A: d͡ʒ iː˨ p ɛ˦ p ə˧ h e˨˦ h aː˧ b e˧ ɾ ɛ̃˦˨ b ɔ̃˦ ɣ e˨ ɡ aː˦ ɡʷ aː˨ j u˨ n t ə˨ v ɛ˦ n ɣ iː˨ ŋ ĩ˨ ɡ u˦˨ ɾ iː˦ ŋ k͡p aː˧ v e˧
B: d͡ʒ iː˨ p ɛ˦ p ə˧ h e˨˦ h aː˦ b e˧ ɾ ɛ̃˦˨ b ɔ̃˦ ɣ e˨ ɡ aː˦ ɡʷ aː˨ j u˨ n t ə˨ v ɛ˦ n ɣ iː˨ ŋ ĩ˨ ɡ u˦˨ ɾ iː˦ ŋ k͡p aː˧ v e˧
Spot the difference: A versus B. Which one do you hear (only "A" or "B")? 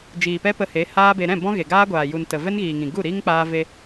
B